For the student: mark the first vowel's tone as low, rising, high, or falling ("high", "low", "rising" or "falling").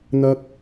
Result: low